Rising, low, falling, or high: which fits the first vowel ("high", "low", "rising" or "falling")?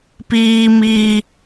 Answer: high